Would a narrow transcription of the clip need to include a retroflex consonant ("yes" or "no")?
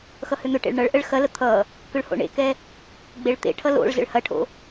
yes